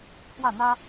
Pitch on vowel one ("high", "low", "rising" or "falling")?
falling